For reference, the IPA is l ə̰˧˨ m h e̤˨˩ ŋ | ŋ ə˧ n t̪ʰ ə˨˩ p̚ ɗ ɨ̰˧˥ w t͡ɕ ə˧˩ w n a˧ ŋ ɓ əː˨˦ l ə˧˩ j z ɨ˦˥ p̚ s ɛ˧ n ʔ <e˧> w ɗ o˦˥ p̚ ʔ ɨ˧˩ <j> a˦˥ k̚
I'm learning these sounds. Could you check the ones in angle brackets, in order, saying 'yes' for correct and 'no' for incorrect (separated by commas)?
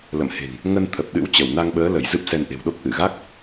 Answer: no, no